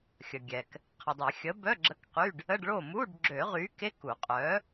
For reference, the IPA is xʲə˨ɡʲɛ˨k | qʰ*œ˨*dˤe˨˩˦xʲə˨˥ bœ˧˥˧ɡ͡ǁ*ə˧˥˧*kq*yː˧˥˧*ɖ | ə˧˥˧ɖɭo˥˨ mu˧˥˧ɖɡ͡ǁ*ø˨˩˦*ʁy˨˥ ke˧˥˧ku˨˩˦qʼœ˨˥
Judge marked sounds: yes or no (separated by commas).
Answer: no, yes, no, yes